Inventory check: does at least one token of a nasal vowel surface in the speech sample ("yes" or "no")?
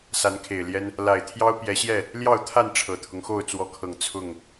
no